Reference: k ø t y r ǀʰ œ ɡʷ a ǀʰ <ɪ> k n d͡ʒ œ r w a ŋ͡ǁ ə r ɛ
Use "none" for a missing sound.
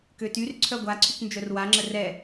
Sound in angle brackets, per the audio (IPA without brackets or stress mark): y